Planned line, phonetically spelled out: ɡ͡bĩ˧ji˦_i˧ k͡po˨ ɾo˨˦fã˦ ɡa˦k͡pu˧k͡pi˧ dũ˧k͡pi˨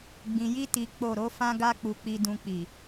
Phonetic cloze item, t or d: t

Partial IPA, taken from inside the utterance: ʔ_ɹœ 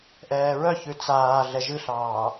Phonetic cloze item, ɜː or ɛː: ɛː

